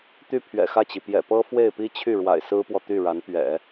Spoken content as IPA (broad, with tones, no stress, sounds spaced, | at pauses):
t̪ y˥˩ pʰ ɥ ɛ̰˨˩ x ä˥˩ t͡ɕ i˩ p j ɛ̰˨˩ p ɤ˥ f w e˥˩ ɪ̯ p i˥ t͡ɕʰ y˥˩ ɻ w a̰˨˩ ɪ̯ s ɹ̩˥ p w ɔ˨ t̪ y˥˩ ɻ a˧˥ n p ɥ ɛ̰˨˩˦